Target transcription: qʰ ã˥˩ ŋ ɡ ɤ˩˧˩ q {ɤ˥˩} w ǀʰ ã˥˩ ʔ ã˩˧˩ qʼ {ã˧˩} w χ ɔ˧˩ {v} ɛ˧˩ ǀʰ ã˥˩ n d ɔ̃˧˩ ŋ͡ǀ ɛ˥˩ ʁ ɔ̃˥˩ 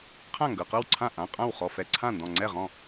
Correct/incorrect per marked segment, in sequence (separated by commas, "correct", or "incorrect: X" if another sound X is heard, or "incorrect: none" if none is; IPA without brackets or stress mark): correct, incorrect: ã˥˩, incorrect: f